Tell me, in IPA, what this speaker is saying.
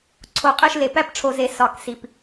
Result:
ǀʰo˨qʼe˥˨ʃle˨ pæ˦pʈ͡ʂʰo˨ze˨ sɒ˨˩˦ksi˨p

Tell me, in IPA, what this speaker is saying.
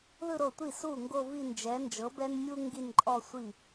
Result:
ðɯ˥˧ɾo˧˩tʷi˥˩ su˥˩ŋɡo˥˧vi˥˧nd͡ʒɛ˨˥ nd͡ʒɤ˨˥bɛ˥nmʲu˥ ŋɡi˥˧nǃʼɔ˥˧sʷi˥˩

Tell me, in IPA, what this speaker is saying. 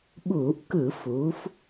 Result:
ɓuː˧˩˧ʔkɯ˧˩˧fuː˩˧f

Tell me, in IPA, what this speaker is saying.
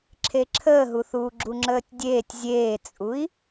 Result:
ǁʰeǁʰəːɦuθuː ɡ͡ǁuŋ͡ǁəːtʲdʲeːtʲ zʲeːt͡sʼui̯

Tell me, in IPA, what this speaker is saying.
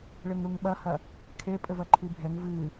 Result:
ɭɘŋɾuŋɓɐhɐ | kʰepʼɘvɐ ǃʰibʱɛŋ vɨ

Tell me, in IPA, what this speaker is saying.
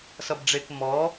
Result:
sʌbɖ͡ʐek mɔː

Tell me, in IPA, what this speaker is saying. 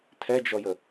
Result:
tʰɛd͡ʒɔjə

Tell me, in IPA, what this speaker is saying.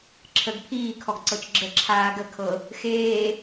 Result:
ǁʰəɡ pʰiːkʰɔɡ ǀɤt͡ʃɡ͡ǁə ǁʰaːɡə kʰɤ | xeː

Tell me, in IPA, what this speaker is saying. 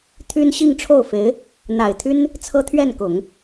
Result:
t̪ʰy˥n ɕi˥˧ŋʈ͡ʂʰo˥˩ʊ̯fe˧˥ɪ̯ | n̪a˨˩ɪ̯t̪ʰy˥n | t͡sʰɤ˥t̪ʰɥɛ˥˩n kʊ˨˩˦ŋ

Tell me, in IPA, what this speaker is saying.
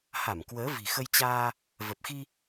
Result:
ha˧˩mkwəː˨˦ vi̤˨˩xə˧jt͡ɕaː˧ | və˨˩p̚xi˧

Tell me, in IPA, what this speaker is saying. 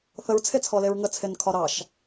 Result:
θəɹt͡sʰet͡sʰɔleɹ ŋət͡sʰenkʰɒ ɾɑʃ

